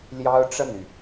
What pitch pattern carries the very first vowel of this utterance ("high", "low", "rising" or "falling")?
high